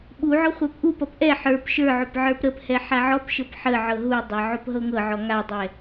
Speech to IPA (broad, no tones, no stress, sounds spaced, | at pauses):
ɓ u ʕ ɔ χʷ ɛ p ʔ u p ʌ p ʔ ɛ ħ ə˞ p ʃ ə˞ ʕ o p ʕ ə˞ p ɾ ə p h ɛ ħ a ʕ ɔ p ʃ ɤ p ħ ə ʕ ɤ ɦ u dˤ a ʕ o p ɦ ɤ ŋ ɤ ʕ ɔ ŋ a dˤ ɛ